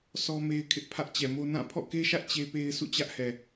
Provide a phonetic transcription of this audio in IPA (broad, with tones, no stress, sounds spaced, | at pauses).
sʰ ɔ˦ m e˦ ɪ̯ kʰ ɪ˦ ʔ pʰ ä˦ ʔ t͡ɕ ɛ˨ m o˦ n ã˦˨ pʰ ɔ̰˦˨ k e˦ ʃ ä˦ ʔ t͡ɕ e˦ p e˦ ɪ̯ sʰ ṵ˦˨ t͡ɕ ä˦ ʔ h ɛ˨